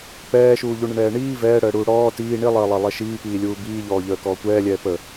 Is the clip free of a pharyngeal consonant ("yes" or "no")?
yes